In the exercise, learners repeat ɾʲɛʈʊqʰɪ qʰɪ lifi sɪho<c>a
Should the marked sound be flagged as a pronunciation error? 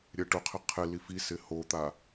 yes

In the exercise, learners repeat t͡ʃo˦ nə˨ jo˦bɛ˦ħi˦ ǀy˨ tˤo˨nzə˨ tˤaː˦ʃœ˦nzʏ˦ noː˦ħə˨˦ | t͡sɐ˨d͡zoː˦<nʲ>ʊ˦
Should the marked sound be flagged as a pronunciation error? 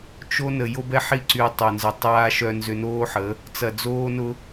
yes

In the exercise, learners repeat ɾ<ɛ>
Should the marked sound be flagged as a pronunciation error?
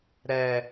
no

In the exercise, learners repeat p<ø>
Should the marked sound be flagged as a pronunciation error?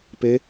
yes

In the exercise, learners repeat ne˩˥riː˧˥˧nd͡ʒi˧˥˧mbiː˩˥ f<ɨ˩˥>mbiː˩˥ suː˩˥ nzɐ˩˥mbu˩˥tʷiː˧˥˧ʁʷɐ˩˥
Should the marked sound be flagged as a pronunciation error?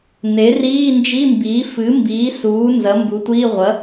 no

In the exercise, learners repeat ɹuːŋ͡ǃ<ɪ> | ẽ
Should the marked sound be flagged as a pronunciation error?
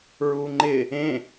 no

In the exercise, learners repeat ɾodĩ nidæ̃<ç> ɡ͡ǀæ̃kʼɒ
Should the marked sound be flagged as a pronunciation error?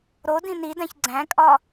no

